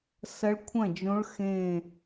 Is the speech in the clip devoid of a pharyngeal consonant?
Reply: yes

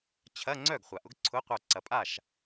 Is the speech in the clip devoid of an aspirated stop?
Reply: no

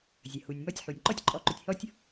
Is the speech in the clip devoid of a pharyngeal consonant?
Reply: no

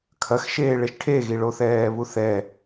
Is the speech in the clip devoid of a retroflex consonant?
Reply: no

